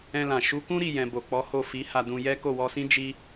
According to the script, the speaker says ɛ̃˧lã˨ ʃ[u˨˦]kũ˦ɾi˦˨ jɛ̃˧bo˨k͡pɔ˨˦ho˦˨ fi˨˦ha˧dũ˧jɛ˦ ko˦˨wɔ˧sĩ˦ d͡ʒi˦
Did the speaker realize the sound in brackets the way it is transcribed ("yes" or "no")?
yes